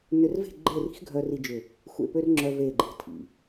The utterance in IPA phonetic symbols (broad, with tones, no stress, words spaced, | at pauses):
nʏ˨rve̤˦˨ɡ͡ǃe˦˨ri̤˦x ɡʱœ˦ri˦d͡ʒʏ˦˨ | xʷḛ˨pø˦r ŋ͡ǁœ˦ve˦˨ɡ͡ǃe̤˦ tʰḭ˨